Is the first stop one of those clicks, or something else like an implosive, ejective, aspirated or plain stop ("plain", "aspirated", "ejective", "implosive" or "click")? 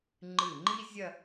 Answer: click